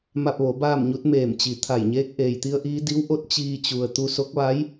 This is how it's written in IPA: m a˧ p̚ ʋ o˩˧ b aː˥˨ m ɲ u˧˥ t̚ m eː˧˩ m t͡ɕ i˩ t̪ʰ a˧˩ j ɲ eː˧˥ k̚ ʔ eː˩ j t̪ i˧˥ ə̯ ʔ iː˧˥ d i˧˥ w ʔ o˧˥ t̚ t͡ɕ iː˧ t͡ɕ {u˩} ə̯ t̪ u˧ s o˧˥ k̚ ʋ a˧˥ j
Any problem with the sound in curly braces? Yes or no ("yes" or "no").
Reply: no